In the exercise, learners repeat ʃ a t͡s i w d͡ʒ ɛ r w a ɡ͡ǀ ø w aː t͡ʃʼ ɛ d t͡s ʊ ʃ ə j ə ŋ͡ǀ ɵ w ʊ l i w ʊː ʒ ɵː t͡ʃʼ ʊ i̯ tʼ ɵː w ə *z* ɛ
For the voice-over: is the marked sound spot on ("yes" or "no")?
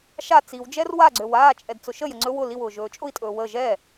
no